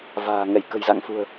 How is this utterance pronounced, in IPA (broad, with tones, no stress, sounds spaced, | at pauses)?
v a̤ː˨˩ ŋ ɛ˧˩ j k ə̤˨˩ j z a̰˧˨ ŋ f ṳ˨˩ ə̯